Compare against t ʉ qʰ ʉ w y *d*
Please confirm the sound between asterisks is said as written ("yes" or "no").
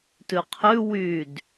yes